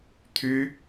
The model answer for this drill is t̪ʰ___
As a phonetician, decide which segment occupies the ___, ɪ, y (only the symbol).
y